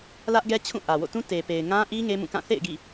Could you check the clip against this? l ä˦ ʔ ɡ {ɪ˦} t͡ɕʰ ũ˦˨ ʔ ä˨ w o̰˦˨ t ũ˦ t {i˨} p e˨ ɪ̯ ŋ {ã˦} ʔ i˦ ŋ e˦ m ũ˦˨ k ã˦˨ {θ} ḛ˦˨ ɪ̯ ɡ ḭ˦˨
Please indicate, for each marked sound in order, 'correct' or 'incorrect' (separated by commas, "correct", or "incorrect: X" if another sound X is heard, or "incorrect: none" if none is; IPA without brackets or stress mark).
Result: incorrect: ɛ˦, incorrect: e˨, correct, correct